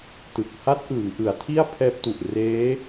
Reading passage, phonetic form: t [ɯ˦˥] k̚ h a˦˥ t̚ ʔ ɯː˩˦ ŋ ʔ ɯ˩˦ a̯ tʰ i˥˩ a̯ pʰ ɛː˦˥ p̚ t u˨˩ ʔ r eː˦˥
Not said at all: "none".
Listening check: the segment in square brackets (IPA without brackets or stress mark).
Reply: ɯ˨˩